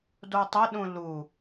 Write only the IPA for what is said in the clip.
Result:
dotˤəɗũ lu

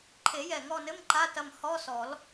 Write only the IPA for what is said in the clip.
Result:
ǃʰe˨˩˦jɛ˨˩ŋɔ˦˨nɘ˧˥˧m ǃa˧˥˧tɐ˦˨m hɔ˧˥˧sɔ˨˩˦l

